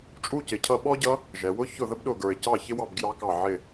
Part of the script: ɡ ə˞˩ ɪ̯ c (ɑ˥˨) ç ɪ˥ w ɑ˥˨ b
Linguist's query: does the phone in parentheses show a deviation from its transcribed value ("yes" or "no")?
no